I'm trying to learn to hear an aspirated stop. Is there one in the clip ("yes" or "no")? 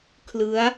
yes